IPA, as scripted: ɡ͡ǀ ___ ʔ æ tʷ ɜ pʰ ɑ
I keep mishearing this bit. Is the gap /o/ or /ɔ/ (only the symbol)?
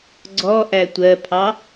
ɔ